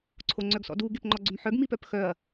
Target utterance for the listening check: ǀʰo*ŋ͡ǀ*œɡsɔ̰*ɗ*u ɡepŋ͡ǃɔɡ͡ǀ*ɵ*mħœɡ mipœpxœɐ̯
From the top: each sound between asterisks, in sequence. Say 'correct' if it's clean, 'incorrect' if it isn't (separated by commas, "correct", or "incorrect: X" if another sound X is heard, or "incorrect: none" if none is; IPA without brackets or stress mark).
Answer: correct, incorrect: d, correct